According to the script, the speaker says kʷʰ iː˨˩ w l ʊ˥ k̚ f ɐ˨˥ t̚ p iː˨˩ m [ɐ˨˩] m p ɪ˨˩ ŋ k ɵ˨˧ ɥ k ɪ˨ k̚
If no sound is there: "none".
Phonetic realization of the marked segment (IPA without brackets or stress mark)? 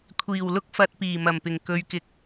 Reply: ɐ˨˩